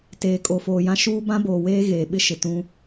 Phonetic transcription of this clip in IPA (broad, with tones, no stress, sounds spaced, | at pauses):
t eː˨ kʼ o˨ f oː˨ j ã˦ ʃ uː˦ b ã˦ b oː˨ w eː˦ ɣ eː˨ ɓ ɪ˦ ʃ ɪ˨ t ũ˦